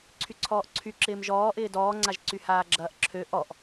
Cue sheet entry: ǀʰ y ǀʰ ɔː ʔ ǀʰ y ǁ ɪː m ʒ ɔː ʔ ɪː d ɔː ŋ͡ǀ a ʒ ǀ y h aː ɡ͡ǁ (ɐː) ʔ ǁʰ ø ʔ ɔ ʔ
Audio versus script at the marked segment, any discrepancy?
no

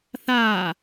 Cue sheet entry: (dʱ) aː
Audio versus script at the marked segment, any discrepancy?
yes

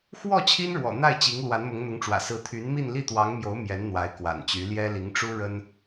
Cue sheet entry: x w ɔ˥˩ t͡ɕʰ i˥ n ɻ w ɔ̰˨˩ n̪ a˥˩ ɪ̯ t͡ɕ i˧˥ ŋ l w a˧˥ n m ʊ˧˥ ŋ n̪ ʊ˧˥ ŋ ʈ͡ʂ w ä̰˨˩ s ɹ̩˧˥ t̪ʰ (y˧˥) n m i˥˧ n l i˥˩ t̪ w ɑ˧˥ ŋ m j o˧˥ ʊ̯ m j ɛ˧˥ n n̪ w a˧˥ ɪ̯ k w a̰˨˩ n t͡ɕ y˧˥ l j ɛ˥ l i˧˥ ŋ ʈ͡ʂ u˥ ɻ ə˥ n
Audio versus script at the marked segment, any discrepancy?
no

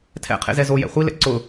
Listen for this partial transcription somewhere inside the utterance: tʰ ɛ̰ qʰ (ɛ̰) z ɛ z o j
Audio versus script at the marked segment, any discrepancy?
yes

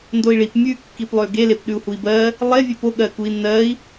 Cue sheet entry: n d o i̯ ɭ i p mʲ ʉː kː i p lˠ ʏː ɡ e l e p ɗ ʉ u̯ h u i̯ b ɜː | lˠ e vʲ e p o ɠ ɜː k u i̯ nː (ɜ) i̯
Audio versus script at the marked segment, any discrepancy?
yes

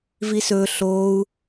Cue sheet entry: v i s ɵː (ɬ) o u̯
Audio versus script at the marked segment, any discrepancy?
no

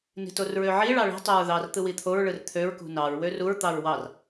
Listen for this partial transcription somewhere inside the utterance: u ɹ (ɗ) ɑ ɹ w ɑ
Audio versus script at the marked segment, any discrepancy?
yes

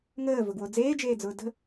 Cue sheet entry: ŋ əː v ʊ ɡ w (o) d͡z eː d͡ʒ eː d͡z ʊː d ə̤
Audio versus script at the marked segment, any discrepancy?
no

